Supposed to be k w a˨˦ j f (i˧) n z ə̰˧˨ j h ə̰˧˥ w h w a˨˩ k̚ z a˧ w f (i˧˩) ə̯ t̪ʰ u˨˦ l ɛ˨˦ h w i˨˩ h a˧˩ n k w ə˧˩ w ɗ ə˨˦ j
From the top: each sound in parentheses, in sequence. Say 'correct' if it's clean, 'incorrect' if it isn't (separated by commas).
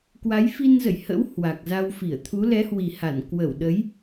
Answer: correct, correct